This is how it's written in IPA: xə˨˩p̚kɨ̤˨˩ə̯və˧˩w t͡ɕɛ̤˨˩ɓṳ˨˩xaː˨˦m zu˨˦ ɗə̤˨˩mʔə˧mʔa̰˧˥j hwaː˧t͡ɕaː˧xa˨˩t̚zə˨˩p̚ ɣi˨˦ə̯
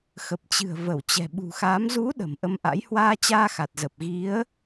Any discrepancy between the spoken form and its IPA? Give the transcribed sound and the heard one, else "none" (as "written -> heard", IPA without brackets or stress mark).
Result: k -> t͡ɕ